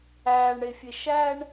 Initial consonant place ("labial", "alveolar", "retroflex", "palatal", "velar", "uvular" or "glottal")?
retroflex